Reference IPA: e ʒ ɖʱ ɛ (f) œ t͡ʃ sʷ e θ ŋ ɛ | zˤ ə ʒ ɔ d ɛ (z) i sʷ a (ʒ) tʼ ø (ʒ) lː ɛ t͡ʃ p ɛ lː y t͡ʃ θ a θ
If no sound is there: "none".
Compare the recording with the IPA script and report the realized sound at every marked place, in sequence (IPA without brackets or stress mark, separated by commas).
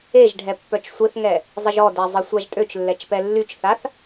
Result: pː, zˤ, ʒ, t͡ʃ